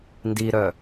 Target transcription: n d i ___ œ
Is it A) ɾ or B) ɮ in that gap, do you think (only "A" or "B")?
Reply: A